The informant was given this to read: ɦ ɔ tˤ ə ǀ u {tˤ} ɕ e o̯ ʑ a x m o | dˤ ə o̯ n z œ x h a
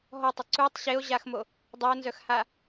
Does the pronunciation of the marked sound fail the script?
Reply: no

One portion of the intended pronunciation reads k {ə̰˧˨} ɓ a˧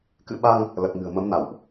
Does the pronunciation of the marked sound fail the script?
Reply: yes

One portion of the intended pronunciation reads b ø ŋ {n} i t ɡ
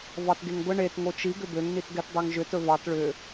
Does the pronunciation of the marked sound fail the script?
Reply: no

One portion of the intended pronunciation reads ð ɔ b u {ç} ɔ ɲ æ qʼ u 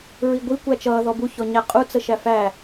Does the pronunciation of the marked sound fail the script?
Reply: no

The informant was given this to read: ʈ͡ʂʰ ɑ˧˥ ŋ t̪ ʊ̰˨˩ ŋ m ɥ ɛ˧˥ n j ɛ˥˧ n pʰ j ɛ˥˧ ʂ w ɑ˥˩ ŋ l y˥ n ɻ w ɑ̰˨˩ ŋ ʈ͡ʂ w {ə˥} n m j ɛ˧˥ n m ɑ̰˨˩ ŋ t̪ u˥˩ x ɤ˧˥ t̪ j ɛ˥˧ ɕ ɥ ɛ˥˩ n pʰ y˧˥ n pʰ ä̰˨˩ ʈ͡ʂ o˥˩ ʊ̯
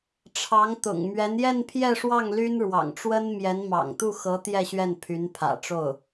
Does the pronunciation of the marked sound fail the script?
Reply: no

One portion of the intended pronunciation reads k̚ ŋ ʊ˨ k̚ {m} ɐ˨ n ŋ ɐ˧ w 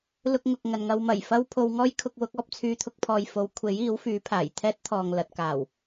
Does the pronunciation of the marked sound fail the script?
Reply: yes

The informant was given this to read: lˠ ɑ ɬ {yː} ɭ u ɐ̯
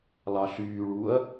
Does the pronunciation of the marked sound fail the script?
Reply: no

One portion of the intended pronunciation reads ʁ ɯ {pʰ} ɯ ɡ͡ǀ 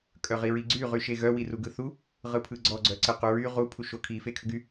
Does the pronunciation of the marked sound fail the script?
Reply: no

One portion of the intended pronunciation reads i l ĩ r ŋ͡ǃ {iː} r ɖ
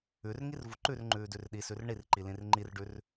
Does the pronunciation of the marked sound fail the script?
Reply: yes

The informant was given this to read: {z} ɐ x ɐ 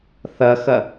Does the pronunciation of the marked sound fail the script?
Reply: yes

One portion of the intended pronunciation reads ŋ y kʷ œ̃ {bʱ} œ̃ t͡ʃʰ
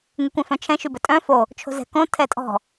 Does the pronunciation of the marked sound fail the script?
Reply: yes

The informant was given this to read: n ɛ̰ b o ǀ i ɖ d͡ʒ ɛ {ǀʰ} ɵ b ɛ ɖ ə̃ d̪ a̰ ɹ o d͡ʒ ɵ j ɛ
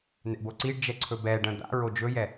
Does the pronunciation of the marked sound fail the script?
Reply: no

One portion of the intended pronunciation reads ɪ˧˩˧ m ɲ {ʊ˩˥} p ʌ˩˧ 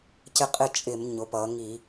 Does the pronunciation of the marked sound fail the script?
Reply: no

